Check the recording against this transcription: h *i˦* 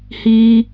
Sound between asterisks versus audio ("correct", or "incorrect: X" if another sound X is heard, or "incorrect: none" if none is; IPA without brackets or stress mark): incorrect: iː˦